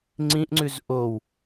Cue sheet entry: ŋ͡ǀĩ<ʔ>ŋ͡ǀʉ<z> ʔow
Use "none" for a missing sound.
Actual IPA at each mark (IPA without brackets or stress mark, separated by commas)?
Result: ʔ, z